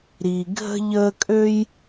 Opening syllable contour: low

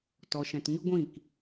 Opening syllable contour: low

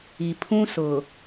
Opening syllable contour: low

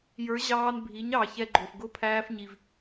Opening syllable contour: rising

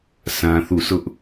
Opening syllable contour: high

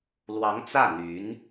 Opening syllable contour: rising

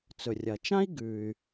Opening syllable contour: low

